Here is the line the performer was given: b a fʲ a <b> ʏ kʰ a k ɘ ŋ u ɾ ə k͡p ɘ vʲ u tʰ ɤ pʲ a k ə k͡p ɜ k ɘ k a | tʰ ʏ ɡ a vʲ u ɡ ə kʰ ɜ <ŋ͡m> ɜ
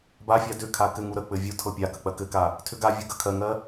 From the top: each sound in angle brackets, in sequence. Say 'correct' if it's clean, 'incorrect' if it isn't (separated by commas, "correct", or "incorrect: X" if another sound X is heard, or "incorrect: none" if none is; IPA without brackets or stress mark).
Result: incorrect: d, incorrect: ŋ